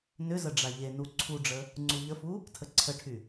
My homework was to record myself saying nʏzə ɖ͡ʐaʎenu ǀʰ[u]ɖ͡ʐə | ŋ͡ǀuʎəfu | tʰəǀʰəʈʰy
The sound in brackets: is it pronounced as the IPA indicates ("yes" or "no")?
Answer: yes